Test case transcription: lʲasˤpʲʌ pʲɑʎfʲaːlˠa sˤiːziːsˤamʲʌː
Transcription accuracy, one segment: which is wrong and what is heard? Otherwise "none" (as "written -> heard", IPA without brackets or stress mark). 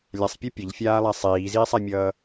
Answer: ɑ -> ʌ